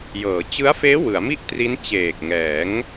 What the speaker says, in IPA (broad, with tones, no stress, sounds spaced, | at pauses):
j ɤː˩˦ t͡ɕ ɯ˦˥ a̯ f eː˦˥ w ɯ˩˦ a̯ m i˥˩ ʔ t r i˦˥ n t͡ɕ eː˨˩ k̚ ŋ ɛː˩˦ ŋ